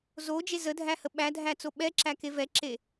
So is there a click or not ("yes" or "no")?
yes